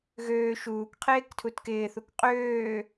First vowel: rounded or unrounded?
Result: rounded